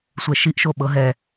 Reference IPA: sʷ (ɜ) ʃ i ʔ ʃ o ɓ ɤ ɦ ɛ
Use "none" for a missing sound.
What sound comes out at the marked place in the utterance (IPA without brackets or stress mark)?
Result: ɛ